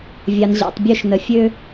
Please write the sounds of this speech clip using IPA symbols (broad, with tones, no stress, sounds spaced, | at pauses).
vʲ ɑ˨ n ʑ ɑ̰˨ tˤ bʲ ø˦˨ ʃ n ə˨ fʲ ø˧